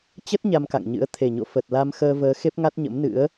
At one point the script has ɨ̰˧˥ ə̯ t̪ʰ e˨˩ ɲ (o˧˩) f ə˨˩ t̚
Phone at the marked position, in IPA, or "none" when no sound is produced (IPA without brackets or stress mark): o̰˧˨